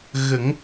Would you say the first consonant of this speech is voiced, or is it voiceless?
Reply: voiced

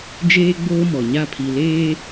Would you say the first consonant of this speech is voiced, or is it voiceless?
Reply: voiced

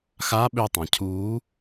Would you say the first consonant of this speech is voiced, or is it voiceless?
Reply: voiceless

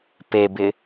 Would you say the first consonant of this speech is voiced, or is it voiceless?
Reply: voiceless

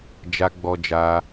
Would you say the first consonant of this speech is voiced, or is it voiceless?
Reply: voiced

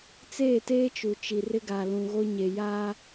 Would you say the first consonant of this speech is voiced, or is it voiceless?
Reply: voiceless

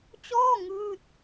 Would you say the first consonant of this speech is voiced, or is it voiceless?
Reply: voiceless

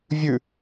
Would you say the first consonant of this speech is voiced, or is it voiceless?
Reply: voiced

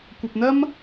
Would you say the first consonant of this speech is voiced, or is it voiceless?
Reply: voiceless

